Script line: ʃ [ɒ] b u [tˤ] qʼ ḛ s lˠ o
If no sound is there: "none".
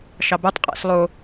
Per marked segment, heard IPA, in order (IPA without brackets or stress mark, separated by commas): ɑ, tˤ